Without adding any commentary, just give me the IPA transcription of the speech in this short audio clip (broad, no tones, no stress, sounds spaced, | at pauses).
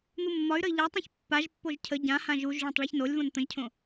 n̪ u mː ɒ y̯ ɾ ə i̯ ʎ a tˤ ɛ̃ ç pː a ʒ pː o ʒ cʰ ə ɟ ã h ã ʒ u ʒ ɭ õ tˤ ɭ a ç n o lʲ v õ n t̪ ə̃ ʒ cʰ õ